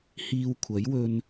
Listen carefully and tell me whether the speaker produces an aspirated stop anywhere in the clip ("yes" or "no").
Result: yes